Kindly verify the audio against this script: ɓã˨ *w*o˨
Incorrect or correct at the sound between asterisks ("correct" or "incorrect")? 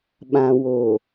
correct